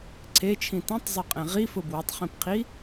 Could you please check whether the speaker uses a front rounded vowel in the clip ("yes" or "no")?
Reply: no